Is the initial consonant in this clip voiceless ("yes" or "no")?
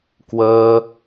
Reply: yes